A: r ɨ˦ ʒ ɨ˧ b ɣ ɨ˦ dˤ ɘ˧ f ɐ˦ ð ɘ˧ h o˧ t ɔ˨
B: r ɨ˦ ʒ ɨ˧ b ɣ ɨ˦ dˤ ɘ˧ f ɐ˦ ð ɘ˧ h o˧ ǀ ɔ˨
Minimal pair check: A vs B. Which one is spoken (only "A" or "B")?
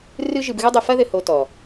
A